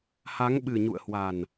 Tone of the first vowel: rising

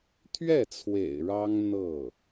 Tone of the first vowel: falling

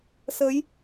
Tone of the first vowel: rising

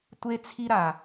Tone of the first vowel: high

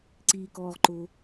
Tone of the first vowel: low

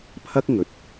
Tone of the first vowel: high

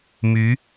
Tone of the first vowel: rising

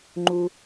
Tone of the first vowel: low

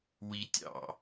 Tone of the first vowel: low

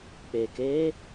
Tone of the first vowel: low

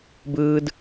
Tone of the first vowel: high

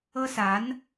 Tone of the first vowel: high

